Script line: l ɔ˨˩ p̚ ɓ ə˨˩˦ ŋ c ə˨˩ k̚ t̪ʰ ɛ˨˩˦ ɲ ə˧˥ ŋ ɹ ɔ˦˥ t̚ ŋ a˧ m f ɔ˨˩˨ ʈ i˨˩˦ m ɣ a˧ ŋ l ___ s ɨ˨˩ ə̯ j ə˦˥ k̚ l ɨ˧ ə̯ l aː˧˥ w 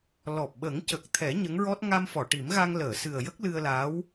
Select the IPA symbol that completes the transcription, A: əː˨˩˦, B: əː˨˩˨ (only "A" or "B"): B